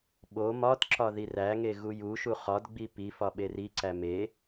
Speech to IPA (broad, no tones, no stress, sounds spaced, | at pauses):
ɓ o m ɒ t ǁ ɒ ð i r æ ŋ e ɣ u j u ʃ u χ ɒ d ɡ͡b i p i f ɒ ɓ e r i ǀ æ m e